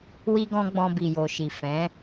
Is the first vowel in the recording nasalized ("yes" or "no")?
no